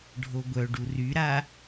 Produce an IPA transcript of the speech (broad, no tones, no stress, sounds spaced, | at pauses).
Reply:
ɖʱ o ɡʷ œ ɖ u r y ɾ a